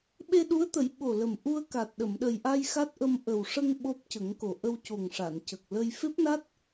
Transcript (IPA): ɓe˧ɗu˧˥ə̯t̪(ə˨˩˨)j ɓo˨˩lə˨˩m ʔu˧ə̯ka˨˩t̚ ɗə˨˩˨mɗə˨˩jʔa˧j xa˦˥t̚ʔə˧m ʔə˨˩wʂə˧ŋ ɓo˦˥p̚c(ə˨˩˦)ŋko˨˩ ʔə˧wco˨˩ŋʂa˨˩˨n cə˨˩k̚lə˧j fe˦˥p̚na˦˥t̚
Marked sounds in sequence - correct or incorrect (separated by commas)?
incorrect, correct